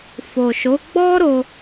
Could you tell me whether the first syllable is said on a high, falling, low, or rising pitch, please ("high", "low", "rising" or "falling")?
low